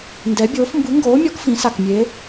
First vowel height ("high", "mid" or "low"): mid